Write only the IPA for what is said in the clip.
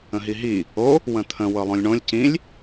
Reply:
ə̃ ɦ i ɦ i | o | w ə̃ t̪ʰ ə̃ w ɤ lˠ õ lʲ ɳ õ lʲ c ĩ lʲ

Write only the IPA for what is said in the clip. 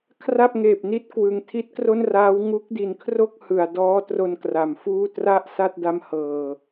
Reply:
kʰ r a˥˩ p̚ ŋ eː˨˩ p̚ n i˦˥ t̚ k w ɯ˨˩ ŋ tʰ i˦˥ t̚ k r o˥˩ n r aː˦˥ w ŋ u˦˥ k̚ d i˩˦ n kʰ r o˥˩ k̚ h ɯ˨˩ a̯ d ɔː˦˥ t r o˧ n k r a˩˦ m f uː˥˩ t r a˥˩ ʔ s a˥˩ t̚ d a˧ m h ɤː˨˩

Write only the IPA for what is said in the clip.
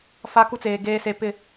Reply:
f a˦ k u˦ t͡s eː˨ ɡ eː˨ s e˨ p ɪ˦˨

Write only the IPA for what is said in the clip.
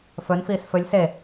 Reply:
f ɵ n f iː s f ɵ lʲ s e

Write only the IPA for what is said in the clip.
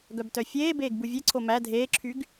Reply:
ɡ œ b t œ fʲ eː b eː ɡ b u vʲ e ǀʰ o m æ dʱ eː ǁʰ y ɡ

